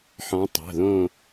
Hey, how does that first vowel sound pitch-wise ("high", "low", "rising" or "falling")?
rising